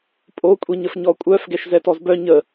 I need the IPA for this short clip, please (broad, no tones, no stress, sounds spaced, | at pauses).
pʼ o kʷʼ i ɲ ə f ɲ ɔ kʷʼ œ f ɡ ɛ ʃ z ɛ t ɔ z b œ ɲ ə